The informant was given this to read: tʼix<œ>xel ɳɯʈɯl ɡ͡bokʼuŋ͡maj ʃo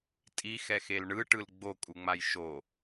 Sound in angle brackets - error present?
yes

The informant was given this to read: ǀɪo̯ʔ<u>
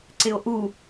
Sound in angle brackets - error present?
no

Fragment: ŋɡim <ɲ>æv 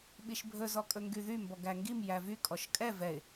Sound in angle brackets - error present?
yes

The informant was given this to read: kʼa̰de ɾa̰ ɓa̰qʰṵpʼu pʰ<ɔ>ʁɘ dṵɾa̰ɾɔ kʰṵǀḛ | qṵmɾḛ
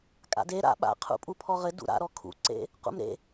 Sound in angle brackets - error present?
no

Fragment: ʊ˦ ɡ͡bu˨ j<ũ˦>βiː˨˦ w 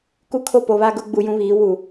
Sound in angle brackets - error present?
no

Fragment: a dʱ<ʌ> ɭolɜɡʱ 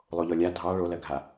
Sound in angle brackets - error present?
yes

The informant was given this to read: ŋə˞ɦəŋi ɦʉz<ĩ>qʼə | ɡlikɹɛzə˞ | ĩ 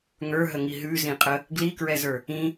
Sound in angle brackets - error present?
no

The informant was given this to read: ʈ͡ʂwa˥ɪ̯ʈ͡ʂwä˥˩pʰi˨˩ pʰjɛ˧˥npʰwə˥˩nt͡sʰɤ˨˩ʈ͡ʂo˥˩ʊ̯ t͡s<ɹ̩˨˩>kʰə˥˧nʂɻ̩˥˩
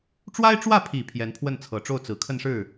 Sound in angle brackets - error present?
no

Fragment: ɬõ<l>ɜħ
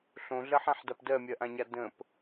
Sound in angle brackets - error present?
yes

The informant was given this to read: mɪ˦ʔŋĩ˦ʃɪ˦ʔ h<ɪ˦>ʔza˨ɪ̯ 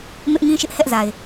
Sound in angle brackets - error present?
yes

